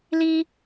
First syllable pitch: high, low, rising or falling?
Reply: high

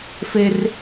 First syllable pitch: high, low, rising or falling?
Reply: high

